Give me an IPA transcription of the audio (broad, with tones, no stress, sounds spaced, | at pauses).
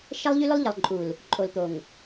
ʃ ɛ˦ lˠ ʎ y˦ l ʊ˦ lˠ ʎ ə˨ lˠ ǃʼ u˨ l | ǃʼ o˨ l t̪ o˨ ŋ